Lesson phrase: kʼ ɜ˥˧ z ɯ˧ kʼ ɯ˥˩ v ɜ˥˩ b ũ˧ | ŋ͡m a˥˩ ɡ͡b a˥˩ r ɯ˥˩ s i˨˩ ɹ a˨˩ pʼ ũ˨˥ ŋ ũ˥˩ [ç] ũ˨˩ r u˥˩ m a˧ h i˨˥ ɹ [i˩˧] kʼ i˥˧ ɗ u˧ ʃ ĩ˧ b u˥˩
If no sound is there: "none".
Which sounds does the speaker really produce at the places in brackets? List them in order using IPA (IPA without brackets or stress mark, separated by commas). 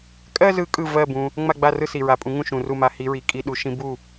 ʃ, i˩˧